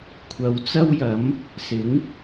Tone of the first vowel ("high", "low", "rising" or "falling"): low